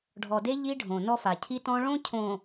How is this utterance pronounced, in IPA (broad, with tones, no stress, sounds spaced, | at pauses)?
ɖʱ ɔ˨ d e˦ ʎ i˦ ɖʱ õ˨ n ɔ˦ f a˨ cʰ i˦ t ɔ̃˦ ɭ õ˦ cʰ õ˨